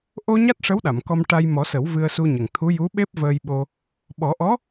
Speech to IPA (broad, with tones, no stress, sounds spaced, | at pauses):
ʔ o˧ ɲ a˦˥ t̚ ʂ ə˧˥ w ɗ a˨˩˨ m k ɔ˧ m ʈ a˧ j m ɔ˨˩˦ s ə˨˩˦ w v ɨ˧ ə̯ s u˧ ɲ ə˨˩ ŋ t̪ʰ u˧˥ j u˧˥ ɓ e˦˥ p̚ v əː˧ j ɓ o˧ | ɓ ɔ˨˩˦ ʔ ɔ˧˥